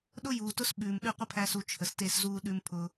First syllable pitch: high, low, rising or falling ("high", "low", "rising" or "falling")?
high